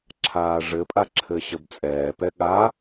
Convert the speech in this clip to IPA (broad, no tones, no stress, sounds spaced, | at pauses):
ǁʰ aː ʐ ɘ pʼ a ǁʰ ɘ ɕ ə b t͡sʼ ɛː p ɛ ɠ a